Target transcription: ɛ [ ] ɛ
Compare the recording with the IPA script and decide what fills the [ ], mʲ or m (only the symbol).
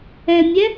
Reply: mʲ